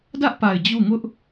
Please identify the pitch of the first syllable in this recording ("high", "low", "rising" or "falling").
high